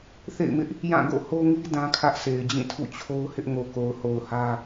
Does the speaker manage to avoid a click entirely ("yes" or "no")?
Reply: yes